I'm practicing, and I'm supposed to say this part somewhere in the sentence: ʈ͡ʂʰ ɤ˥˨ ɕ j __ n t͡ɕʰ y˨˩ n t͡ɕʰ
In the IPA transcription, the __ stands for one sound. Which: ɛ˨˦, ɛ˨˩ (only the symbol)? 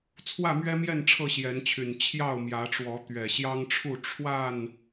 ɛ˨˦